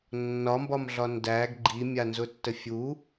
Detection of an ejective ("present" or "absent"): absent